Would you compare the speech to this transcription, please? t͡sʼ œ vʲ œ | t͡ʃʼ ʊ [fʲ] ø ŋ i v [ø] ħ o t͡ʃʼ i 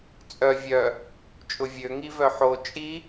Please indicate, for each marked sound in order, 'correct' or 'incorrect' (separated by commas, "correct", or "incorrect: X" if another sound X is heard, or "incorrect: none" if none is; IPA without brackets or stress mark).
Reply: incorrect: vʲ, incorrect: œ